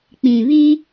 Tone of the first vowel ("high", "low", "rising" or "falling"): low